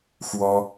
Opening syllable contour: high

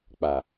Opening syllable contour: low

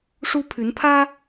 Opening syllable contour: high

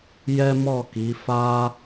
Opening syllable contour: high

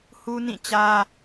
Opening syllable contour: high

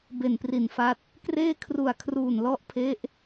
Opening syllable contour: low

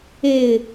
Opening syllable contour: low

